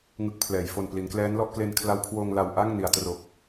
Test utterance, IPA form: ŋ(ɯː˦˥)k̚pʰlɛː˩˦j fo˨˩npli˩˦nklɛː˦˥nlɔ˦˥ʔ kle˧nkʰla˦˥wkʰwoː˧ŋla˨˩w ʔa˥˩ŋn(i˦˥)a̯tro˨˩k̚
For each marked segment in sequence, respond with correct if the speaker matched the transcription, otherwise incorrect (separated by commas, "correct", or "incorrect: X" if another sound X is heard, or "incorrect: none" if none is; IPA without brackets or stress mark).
incorrect: ɯ˦˥, incorrect: i˩˦